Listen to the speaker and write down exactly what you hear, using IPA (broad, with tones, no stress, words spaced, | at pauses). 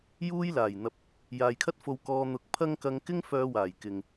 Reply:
juː˥j laː˨˩jn̪ɐ˨p̚ | jaː˨jkʰɐ˥t̚fo˧wkɔː˧ n̪ʊ˧k̚ pʰɐ˥ŋ kɐ˧ŋkɪ˥ŋ fœː˧waː˨˩j kɪ˨ŋ